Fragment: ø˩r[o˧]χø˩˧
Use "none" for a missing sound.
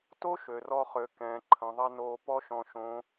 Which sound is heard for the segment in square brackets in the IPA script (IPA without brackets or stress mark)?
ɔ˧